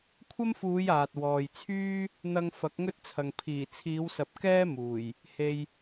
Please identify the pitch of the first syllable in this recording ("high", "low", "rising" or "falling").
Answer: high